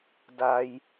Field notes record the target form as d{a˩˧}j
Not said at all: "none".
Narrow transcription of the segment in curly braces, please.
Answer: a˧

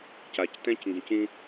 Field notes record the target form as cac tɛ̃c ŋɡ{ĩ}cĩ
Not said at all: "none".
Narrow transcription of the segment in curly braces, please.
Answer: ĩ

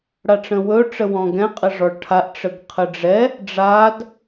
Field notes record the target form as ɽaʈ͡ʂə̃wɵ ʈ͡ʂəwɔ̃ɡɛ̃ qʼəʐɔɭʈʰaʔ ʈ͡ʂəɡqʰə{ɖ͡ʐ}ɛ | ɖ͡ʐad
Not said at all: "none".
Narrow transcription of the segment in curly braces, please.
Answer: ɖ͡ʐ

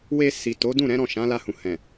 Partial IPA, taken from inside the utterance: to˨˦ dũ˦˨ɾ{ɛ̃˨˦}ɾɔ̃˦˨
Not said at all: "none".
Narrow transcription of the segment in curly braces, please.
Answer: ɛ̃˨˦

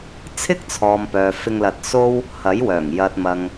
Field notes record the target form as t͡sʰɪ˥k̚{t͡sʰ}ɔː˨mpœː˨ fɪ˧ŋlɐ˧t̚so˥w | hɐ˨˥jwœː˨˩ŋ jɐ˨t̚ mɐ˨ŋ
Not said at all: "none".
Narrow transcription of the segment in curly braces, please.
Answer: t͡sʰ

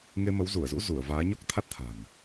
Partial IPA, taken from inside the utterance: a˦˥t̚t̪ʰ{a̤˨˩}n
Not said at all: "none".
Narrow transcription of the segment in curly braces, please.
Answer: a̤˨˩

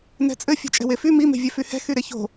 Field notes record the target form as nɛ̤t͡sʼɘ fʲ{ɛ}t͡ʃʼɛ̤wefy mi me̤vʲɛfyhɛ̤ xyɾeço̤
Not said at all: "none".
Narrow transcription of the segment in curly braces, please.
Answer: ɛ̤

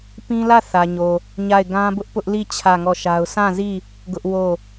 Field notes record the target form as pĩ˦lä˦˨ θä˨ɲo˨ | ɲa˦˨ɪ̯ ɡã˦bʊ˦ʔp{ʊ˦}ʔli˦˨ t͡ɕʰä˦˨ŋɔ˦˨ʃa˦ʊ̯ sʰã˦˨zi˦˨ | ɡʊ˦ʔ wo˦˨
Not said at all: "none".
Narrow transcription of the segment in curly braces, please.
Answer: ʊ˦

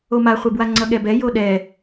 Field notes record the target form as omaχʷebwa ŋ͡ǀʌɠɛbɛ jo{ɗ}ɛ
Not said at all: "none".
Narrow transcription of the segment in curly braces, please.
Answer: ɗ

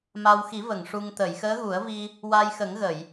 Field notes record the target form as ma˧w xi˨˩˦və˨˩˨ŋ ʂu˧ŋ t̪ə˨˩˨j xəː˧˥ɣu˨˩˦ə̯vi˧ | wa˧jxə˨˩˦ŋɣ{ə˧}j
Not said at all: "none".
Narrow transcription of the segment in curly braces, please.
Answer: ə˨˩˨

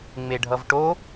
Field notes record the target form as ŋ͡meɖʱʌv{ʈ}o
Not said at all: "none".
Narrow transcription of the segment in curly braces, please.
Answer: ʈ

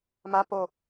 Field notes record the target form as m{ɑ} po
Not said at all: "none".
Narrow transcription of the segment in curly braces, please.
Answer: a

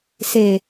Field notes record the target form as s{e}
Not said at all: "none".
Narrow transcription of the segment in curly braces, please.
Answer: e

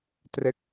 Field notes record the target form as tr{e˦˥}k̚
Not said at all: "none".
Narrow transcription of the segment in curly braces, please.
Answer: e˦˥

